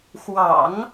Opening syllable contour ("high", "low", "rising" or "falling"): low